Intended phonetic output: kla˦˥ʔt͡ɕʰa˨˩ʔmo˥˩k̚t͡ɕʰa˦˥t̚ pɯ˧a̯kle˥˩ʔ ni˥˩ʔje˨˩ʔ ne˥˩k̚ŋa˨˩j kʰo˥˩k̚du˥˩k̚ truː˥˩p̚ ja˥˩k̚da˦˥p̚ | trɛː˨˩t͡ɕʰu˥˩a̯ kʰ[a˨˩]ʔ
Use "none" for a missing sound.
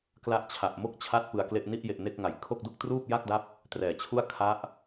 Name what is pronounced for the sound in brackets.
a˦˥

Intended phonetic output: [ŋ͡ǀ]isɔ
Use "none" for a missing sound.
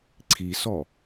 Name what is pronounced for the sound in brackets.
ǀʰ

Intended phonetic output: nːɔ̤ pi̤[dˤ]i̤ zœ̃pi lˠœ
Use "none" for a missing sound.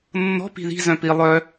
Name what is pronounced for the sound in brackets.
ð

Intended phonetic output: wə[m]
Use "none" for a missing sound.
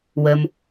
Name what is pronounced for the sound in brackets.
m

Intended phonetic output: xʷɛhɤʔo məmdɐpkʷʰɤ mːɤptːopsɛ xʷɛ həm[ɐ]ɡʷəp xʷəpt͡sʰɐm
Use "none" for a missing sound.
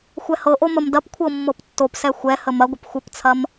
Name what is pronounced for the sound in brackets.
ɐ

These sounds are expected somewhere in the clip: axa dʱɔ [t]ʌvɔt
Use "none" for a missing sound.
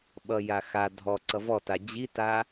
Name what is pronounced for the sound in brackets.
ǀ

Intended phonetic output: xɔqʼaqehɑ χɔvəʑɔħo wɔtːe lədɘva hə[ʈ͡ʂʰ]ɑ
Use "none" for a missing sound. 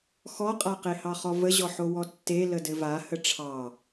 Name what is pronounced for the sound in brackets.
ʈ͡ʂʰ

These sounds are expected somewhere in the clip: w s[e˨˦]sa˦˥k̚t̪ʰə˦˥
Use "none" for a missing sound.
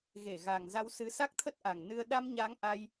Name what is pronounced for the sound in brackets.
ɨ˨˦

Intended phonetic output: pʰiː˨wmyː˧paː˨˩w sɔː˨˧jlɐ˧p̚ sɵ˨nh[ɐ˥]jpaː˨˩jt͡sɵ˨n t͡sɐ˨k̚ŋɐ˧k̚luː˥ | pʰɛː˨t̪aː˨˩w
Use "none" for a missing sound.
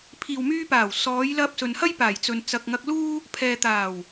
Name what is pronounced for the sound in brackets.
ɐ˥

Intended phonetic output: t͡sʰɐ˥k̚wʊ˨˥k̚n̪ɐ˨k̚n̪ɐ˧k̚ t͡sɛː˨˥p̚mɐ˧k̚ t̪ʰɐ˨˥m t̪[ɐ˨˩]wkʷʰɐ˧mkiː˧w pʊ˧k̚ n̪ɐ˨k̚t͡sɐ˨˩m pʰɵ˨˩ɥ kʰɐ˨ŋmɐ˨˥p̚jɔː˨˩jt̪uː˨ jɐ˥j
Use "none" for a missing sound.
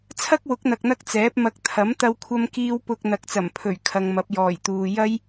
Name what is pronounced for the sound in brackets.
ɐ˧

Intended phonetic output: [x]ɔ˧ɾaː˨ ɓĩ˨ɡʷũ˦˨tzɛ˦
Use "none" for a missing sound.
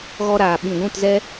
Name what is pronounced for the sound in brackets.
ɣ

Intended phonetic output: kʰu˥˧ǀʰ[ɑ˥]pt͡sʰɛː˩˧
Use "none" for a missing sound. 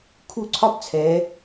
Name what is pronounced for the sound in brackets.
ɒ˥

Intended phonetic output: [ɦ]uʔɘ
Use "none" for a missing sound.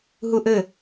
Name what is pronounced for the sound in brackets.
ɦ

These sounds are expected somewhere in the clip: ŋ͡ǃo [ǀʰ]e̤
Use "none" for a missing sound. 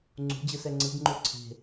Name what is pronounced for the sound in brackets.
ǀʰ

